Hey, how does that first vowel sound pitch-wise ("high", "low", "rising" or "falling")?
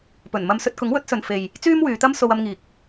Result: low